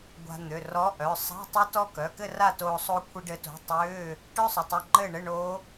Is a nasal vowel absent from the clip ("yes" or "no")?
yes